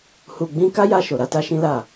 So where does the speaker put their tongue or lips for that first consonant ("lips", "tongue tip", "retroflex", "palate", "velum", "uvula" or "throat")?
throat